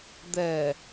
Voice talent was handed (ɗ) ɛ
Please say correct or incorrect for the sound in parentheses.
incorrect